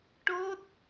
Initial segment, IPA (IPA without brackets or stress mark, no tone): ʈ